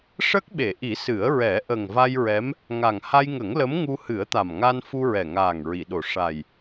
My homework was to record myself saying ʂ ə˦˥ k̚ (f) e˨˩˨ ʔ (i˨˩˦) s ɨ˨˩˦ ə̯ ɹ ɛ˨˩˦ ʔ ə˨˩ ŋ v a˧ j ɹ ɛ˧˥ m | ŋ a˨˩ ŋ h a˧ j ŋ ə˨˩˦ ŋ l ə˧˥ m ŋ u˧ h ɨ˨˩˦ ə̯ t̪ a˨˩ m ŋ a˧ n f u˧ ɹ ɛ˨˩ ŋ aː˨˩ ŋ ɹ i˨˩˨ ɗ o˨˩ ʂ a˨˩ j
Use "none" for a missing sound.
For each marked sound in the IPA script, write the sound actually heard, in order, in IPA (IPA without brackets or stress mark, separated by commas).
ɓ, i˨˩˦